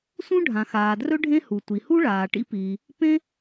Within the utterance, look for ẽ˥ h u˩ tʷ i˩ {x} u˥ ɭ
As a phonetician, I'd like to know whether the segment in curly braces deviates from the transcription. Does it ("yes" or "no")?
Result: yes